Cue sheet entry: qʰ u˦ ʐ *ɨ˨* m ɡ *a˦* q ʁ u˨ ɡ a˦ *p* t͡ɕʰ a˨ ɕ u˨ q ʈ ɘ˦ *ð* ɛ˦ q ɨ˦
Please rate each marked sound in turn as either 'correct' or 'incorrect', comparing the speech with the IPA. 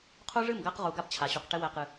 incorrect: ɨ˦˨, correct, correct, incorrect: w

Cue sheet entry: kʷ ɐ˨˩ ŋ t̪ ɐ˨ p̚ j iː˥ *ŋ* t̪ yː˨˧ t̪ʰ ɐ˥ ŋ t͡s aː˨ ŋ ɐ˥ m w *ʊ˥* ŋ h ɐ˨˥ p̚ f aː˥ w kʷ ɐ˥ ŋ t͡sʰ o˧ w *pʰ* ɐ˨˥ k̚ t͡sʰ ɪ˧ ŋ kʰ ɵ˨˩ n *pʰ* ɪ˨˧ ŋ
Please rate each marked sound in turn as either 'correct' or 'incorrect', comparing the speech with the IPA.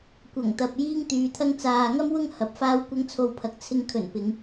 correct, correct, correct, incorrect: p

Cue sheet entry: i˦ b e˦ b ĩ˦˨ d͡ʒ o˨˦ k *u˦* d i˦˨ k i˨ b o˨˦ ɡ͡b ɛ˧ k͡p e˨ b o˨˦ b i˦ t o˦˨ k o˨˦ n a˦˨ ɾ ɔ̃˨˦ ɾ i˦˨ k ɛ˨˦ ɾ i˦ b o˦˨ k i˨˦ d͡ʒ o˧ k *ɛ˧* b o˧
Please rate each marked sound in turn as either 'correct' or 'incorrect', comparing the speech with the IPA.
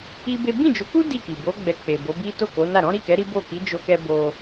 correct, correct

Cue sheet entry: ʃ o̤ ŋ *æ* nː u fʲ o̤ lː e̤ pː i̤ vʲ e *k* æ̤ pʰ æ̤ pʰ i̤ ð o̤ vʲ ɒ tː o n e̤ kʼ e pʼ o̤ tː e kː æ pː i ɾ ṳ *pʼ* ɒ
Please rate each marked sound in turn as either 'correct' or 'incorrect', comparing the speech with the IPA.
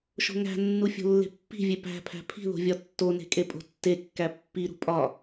incorrect: æ̤, incorrect: p, correct

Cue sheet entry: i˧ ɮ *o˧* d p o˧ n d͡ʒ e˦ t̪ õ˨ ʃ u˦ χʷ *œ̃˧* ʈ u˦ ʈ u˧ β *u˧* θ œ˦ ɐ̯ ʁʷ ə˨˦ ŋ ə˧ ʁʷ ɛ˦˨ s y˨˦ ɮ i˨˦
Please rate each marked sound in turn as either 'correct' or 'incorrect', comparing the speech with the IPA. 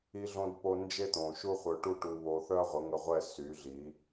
incorrect: õ˧, incorrect: œ˧, incorrect: o˧

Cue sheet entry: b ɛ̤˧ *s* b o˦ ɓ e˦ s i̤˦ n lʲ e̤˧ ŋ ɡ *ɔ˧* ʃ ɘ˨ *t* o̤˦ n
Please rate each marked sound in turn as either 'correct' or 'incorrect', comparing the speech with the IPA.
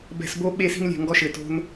correct, correct, correct

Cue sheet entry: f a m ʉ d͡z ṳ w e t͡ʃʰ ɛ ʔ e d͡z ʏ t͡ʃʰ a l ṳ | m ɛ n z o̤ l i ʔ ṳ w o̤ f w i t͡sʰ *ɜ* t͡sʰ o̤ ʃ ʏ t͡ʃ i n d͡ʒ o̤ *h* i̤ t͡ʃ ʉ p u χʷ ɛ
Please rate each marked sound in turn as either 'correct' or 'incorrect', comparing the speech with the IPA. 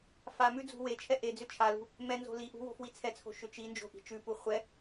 incorrect: ɛ, incorrect: ʔ

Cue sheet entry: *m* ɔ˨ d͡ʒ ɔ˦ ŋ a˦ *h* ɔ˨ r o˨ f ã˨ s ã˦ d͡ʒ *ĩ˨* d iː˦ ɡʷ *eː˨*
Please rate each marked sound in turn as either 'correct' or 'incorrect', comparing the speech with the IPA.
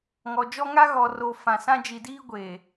incorrect: ŋ, incorrect: ɣ, incorrect: i˨, correct

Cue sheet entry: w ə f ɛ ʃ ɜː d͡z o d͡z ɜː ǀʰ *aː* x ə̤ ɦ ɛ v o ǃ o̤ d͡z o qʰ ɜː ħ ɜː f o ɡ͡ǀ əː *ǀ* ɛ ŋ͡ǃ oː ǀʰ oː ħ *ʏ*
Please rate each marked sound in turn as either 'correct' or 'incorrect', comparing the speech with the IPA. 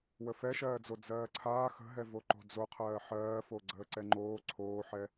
correct, correct, incorrect: ɛ

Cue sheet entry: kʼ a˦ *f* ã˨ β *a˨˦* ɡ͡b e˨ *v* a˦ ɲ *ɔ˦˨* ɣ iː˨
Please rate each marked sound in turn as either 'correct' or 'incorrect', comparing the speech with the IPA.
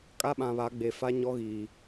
incorrect: ɓ, correct, incorrect: f, incorrect: ɔ˦

